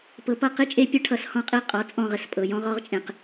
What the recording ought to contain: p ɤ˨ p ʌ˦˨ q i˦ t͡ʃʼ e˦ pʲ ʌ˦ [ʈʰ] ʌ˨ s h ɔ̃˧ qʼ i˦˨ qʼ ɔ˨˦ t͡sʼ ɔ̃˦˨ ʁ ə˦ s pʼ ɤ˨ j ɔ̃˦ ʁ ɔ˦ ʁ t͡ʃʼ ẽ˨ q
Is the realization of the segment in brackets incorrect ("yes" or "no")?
no